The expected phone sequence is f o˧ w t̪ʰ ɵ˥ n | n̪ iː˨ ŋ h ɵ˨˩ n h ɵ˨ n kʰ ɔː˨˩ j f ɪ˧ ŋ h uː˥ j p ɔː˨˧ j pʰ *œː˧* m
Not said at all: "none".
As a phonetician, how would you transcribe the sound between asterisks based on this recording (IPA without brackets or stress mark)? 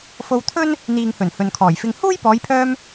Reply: œː˧